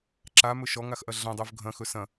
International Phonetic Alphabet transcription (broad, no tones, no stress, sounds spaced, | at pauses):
ǁ a m ɵ ʃ ɔ ŋ a x ʔ ɐ ɮ ɐ̃ dˤ o v ɡʱ ɐ̃ x ɵ s ɐ̃